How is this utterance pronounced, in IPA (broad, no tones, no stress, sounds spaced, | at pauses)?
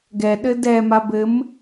ɡ ɛ ɗ ɘ d ɛ m a b ɘ m